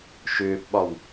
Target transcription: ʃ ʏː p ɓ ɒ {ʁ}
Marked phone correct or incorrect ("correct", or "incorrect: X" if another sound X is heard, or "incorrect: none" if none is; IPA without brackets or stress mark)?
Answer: incorrect: w